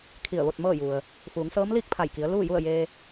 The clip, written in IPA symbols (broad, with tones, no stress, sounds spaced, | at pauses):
kʰ i˧˩ ə̯ ʋ o˥˨ t̚ m ɤː˥˨ j u˩ ə̯ | f uː˩˧ ŋ s ɤː˧˥ m l iː˥˨ k̚ pʰ a˧˩ j k i˩˧ ə̯ l uː˥˨ j u˥˨ ə̯ j eː˧